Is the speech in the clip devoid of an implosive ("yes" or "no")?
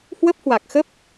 yes